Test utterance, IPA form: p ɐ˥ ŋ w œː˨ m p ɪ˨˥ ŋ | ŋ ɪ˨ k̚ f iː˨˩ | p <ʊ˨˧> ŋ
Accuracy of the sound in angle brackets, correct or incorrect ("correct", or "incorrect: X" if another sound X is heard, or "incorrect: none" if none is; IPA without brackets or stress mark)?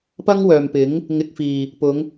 correct